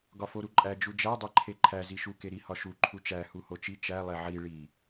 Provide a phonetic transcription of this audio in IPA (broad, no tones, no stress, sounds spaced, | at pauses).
ɡ ɒ f o ɾ u ǃʼ æ d͡ʒ u d͡ʒ æ dˤ e ǃʰ e ǃʰ æ z i ʃ u k e ɾ i h ɒ ʃ u ǃʰ u t͡ʃ æ h u h o t͡ʃ i t͡ʃ æ lˠ e ʕ i ɭ i